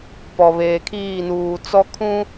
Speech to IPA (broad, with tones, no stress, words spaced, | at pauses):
pɔ˨ βeː˨kʰiː˦˨nuː˨ t͡sɔ˦kʰũ˦